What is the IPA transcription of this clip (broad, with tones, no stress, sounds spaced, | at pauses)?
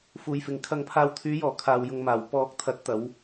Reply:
f uː˨ j f ɪ˨ ŋ kʰ ɐ˧ ŋ pʰ aː˧ w t̪ʰ yː˨˧ j ɔː˨˩ kʰ aː˨ w j ʊ˨ ŋ m aː˨˩ w p ɔː˨˥ k̚ t̪ʰ ɐ˨˥ t̚ t̪ ɐ˨˧ w